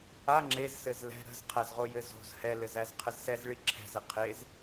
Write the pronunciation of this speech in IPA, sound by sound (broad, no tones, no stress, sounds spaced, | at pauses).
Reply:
a ŋ͡ǁ e z s ɘ z l ɛ̤ ɾ ə̤ z qʰ æ z ʁ o j ɘ z o̤ z h ɛ l ɘ z æ z qʰ ə z s ɛ z ɭ i ǁʰ ɛ̤ z ɘ qʰ e z